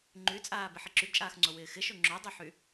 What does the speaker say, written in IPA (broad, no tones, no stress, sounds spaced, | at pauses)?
ŋ͡ǃ y t͡sʼ aː b ɪ ħ ɪ ǁ y ɡ t͡ʃʼ aː x ŋ͡ǀ o w ɪː x ɪ ʃ o ŋ͡ǁ o dˤ y ħ y